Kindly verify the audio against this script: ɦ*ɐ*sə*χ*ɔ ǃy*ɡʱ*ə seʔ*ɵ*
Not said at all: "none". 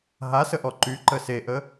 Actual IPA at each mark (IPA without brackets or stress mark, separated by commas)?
a, ʔ, ǃ, ə